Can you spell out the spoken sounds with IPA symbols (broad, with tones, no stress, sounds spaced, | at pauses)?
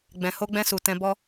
ɡ͡b ɛ̃˨ h o˧ ɡ͡b ɛ̃˧ s u˨ t ɛ̃˧ b ɔ˦